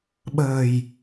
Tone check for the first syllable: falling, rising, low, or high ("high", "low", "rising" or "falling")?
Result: low